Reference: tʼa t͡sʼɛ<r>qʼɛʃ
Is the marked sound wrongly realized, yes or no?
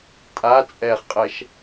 yes